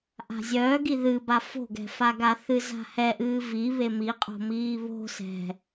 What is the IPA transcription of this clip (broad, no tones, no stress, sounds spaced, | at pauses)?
ʔ a̤ zʲ œː ɡ i ð ɨ b a f o̤ ɡ ɛ̤ f a ɡ a θ ɨ z a̤ h ɛ ʔ ɨː v i β e m i qʼ o̤ m iː β o̤ s ɛ̤